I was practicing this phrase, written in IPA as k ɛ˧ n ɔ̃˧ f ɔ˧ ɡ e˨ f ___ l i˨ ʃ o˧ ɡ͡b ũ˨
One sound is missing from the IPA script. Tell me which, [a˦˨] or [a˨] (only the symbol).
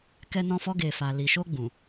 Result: a˨